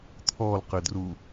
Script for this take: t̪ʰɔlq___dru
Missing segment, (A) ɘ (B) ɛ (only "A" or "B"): A